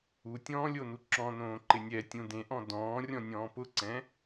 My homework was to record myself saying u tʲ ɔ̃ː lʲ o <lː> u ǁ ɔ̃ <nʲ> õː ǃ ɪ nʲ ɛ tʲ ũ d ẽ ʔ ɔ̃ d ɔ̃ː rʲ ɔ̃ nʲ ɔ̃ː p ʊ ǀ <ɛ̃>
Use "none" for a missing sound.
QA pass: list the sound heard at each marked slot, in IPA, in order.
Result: n, n, ɛ̃

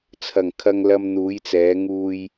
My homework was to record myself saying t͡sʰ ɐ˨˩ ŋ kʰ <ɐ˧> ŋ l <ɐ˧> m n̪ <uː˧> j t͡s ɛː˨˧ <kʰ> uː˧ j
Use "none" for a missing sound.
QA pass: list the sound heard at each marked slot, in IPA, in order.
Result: ɐ˧, ɐ˧, uː˨˧, ŋ

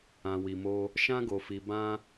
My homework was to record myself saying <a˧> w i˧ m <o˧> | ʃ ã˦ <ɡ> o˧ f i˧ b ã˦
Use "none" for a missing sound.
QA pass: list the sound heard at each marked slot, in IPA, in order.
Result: ã˧, o˦, ɡ

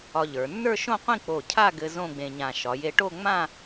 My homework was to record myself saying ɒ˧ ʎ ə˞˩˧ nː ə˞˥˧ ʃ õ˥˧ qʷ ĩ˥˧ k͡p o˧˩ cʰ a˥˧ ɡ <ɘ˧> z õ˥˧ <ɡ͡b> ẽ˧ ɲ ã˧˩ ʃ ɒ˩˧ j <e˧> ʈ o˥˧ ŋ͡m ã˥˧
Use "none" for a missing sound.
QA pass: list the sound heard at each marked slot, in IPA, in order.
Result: ɘ˧, ɡ͡b, e˧

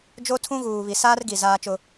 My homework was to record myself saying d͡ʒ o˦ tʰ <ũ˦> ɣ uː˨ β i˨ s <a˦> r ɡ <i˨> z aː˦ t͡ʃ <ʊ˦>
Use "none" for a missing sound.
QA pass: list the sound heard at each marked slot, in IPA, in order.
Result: ũ˦, aː˦, i˨, ʊ˦

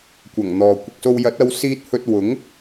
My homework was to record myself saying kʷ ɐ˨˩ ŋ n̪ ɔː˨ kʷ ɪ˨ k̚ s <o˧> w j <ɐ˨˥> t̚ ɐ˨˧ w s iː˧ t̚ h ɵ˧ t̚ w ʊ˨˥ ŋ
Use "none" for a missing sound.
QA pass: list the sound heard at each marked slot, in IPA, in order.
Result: o˧, ɐ˨˥

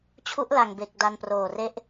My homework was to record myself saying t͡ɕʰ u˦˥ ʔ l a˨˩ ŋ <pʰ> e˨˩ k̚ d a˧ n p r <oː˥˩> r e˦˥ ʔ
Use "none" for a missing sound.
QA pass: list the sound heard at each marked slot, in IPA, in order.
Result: b, oː˨˩

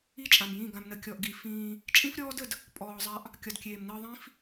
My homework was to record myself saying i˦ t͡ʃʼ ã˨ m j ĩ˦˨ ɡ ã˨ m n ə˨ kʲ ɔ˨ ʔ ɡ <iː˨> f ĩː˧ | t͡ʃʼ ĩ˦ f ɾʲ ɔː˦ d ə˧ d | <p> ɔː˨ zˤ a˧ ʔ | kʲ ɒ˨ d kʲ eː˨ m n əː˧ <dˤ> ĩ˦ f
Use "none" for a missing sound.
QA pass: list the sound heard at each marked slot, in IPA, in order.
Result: i˨, pʼ, ðˤ

